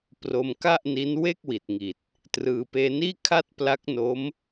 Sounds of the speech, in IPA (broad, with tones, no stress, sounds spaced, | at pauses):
p r o˧ m k a˥˩ ʔ n i˦˥ n w e˥˩ k̚ w i˨˩ t̚ ŋ i˨˩ t̚ | t r ɯː˧ p eː˧ n iː˥˩ kʰ a˥˩ t̚ p l a˦˥ k̚ n o˦˥ m